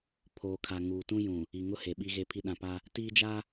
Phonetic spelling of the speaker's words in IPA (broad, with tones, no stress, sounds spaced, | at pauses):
pʰ oː˨ kʰ a˨ ŋ uː˨ t ũ˦ j ũ˨ | i˨ ŋ ʊ˦ h e˨ ɓ i˦ ɣ e˦ pʰ i˦ ɗ ã˨ p a˦ | t iː˦ d͡ʒ a˦